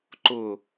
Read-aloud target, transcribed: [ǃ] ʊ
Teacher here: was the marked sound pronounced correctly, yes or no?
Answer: yes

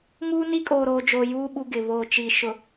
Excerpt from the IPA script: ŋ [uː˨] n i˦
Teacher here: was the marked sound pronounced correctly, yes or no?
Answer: no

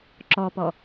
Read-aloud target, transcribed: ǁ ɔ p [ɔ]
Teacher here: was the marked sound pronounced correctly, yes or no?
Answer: yes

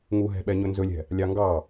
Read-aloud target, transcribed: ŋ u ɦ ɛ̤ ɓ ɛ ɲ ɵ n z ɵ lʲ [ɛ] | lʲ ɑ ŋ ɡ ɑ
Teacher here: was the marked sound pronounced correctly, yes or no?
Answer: no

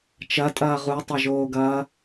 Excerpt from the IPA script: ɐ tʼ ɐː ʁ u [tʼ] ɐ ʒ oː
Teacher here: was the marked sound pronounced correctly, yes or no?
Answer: no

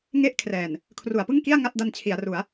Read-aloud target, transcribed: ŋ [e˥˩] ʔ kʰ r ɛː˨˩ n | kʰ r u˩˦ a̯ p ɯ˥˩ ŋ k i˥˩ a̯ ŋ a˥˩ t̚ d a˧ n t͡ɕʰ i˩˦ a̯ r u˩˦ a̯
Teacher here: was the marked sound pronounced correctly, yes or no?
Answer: yes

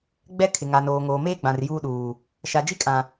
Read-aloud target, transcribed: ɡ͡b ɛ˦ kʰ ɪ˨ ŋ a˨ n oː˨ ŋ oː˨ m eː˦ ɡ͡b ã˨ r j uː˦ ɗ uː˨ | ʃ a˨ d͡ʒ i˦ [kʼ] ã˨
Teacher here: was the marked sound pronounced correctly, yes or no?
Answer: yes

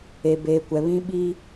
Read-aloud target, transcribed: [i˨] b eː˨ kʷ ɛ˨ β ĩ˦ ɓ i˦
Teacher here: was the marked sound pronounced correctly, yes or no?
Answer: no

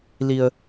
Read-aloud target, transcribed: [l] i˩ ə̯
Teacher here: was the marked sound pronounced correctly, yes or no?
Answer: yes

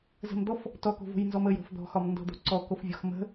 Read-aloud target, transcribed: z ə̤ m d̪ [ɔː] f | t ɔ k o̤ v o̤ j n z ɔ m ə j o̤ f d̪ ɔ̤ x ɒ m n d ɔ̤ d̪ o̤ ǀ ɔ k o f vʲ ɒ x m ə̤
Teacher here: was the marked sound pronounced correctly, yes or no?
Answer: no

